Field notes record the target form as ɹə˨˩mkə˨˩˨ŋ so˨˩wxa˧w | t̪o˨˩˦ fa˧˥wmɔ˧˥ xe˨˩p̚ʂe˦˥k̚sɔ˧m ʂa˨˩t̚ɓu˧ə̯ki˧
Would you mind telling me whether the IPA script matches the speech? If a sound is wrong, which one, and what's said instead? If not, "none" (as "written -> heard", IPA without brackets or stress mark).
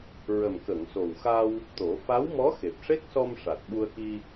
none